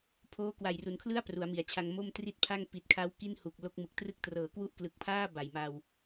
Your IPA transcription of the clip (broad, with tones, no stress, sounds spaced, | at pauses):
pʰ oː˦˥ k w a˨˩ j r u˩˦ n kʰ l ɯ˥˩ a̯ p r u˩˦ a̯ m i˩˦ a̯ t͡ɕʰ a˧ ŋ m o˥˩ m t r i˥˩ t̚ pʰ a˥˩ ŋ p i˨˩ t̚ kʰ a˦˥ w k i˥˩ n h u˨˩ k̚ l o˦˥ k̚ m ɯ˨˩ k̚ t r ɯ˥˩ k̚ t r ɤː˩˦ k w u˦˥ ʔ k l ɯ˨˩ k̚ pʰ aː˥˩ b a˨˩ j m a˧ w